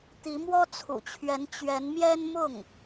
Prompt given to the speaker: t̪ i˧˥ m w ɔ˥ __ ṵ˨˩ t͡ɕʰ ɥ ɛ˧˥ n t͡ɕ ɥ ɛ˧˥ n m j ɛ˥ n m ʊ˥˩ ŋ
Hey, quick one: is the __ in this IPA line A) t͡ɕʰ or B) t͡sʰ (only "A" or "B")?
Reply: B